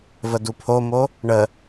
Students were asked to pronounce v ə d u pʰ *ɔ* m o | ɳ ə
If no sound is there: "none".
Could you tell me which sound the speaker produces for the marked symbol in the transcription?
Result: o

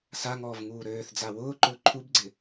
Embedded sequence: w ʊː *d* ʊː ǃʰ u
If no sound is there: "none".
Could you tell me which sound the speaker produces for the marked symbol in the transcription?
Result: ǃ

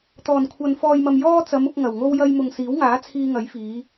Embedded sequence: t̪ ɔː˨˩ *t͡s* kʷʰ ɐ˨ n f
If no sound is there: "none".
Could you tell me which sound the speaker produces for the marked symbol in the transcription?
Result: n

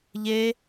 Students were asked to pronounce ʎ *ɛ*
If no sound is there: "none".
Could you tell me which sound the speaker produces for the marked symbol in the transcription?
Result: e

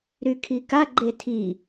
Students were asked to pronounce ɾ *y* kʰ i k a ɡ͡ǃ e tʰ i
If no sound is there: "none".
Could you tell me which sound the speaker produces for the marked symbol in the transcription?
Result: y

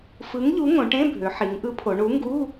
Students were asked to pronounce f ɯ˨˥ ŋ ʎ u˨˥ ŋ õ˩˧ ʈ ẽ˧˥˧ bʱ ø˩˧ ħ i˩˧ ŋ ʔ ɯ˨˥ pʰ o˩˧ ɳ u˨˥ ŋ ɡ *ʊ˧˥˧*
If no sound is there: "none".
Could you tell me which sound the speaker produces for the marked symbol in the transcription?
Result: u˧˥˧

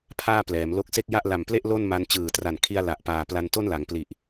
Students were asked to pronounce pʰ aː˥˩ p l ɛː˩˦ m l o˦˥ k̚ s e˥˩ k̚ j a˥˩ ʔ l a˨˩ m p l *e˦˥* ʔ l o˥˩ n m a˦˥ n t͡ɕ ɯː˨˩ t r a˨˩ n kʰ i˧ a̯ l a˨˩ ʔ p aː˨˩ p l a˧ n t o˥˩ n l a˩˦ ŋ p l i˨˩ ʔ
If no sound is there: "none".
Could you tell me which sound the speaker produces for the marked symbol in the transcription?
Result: e˥˩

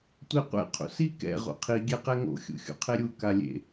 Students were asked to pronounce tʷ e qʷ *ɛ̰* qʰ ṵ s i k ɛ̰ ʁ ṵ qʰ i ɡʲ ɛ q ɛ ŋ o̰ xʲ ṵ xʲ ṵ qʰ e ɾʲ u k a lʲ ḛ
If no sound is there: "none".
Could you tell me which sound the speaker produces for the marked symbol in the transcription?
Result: ɛ̰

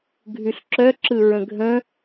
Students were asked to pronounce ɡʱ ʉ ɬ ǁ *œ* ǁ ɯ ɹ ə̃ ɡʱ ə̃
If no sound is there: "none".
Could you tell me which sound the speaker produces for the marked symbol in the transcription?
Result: œ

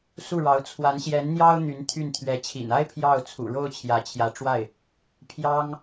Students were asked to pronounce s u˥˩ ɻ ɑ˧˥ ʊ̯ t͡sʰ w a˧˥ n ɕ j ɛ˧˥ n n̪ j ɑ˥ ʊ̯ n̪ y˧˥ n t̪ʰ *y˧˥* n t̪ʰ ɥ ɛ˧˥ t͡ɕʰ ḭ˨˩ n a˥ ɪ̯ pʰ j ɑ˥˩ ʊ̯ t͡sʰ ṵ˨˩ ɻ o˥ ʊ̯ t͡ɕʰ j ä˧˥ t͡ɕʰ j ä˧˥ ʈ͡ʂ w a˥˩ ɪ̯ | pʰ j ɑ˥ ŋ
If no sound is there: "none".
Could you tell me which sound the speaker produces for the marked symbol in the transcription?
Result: y˥˩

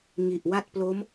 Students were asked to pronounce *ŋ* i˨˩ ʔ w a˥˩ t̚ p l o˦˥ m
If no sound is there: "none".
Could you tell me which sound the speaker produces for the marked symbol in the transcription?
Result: ŋ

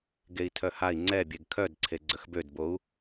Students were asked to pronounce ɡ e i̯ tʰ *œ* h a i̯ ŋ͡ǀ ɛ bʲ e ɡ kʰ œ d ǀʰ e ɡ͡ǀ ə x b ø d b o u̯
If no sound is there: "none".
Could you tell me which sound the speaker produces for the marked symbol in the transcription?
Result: œ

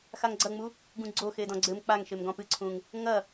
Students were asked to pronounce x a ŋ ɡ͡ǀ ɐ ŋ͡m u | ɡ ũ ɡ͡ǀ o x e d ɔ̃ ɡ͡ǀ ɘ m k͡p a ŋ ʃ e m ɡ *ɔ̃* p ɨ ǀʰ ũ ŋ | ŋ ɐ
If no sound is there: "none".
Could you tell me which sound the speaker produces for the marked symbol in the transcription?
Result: ɔ̃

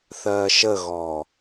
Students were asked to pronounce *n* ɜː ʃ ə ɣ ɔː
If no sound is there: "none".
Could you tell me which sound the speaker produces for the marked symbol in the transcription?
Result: θ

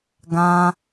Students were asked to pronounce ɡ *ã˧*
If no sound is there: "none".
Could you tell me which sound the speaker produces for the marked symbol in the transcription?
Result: ã˧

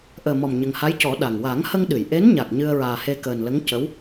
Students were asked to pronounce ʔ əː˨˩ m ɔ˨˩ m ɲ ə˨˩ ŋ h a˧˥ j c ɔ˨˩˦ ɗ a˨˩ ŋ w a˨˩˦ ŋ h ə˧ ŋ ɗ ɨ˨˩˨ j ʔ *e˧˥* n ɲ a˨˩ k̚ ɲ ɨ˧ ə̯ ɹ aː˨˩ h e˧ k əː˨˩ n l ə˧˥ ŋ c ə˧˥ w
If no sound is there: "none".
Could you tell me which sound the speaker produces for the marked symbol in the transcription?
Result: e˧˥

